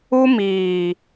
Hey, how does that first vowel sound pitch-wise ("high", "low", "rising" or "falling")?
high